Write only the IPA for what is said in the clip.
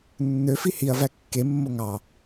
nː ø f i h i ɐ̯ v æ kː e mː o ŋ ɑ

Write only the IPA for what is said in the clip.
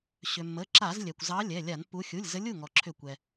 ɕ ʏ˩ mː ə˩˧˩ ǁ a˧˩˧ z lʲ ɛ˩ kʷ z ɑ˨˦ lʲ ɛ˩˧˩ lʲ a˧˩˧ n pː u˨˦ xʲ u˩˧˩ lʲ z ə˨˦ lʲ u˩˧˩ ŋ ɔ˩ ǁʰ ʏ˧˩˧ kʷ ɛ˩

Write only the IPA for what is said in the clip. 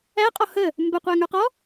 æ qʼ ɔ h ə | m b ə qʷ æ ŋ ə˞ q ɔ

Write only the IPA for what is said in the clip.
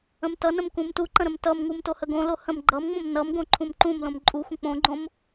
ə̃ m t ʌ n ə̃ m k ũ m t u ǃ ə̃ ɾ ə̃ m t ʌ m ŋ u m t o h ə ɡ õ l o h ə̃ m ɡ͡ǃ ʌ m ŋ͡m õ m n ʌ m ɡ õ ǃʰ ũ m ǃ ũ m l õ m ǃʼ u xʷ ə̃ k͡p õ ɡ͡ǃ õ m

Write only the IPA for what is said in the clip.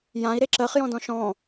j ã i̯ ɾ e ǁ ɜ χ j ɔ̃ d ɔ̃ ʃ ɔ̃

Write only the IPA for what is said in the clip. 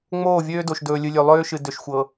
ŋ͡m oː˦˨ vʲ øː˦ d o˨ ʃ d ɵː˨ lʲ ɨ˨ lʲ ø˨ lˠ øː˦ ʃ ɨ˨ d ø˨ ʃ xʷ ɤ˨

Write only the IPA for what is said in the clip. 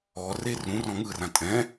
ɔ r e r ũ r ɔ̃ ŋ ɯ r ã tʼ ɛ̃

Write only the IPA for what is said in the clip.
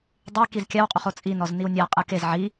dˤ e k i z kʲ a w qʼ u χ o t͡sʼ i n ɔ z n i w nʲ a qʼ ɯ k e z ʕ i

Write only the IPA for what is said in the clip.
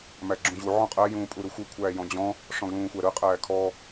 m æ ɡ͡ǁ ũ ʑ u ʕ ɔ̃ qʼ æ j ũː pʼ u ɾ u xʷ ɯ kʷʰ æː j ɔ̃ d͡ʑ ɔ̃ | ʂ ɔ̃ ɡ l ũː xʷ æ ɾ ɯ qʼ æː kʰ ɔ

